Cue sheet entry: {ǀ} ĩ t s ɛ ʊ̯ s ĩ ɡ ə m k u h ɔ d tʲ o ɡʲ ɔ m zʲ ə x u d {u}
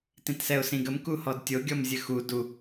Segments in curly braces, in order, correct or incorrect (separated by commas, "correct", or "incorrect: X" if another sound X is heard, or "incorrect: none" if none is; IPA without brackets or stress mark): incorrect: t, correct